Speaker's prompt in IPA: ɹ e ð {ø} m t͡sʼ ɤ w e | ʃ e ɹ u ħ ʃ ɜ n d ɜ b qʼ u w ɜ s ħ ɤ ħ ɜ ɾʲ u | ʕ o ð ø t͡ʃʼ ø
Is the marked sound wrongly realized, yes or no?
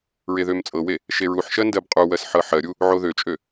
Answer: no